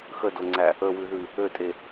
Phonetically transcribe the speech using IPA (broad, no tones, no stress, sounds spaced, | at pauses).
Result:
x ə d o ŋ͡ǀ æ | ə w ʉ ð ʉ | ø tʼ e